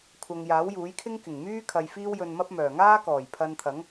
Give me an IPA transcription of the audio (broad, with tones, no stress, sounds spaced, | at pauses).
kʷʰ ɐ˨ ŋ j aː˨˥ w j uː˨˥ j kʰ ɪ˥ ŋ k ɪ˨˩ ŋ m yː˥ kʰ ɐ˨ j f iː˥ w j ɵ˧ n m ɐ˥ p̚ m œː˨˩ ŋ aː˥ k ɔː˨˩ j pʰ ɐ˧ n t̪ʰ ɐ˨˥ ŋ